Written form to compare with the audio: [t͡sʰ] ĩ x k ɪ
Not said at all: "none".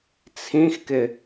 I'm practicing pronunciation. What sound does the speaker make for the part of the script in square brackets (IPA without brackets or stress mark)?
t͡sʰ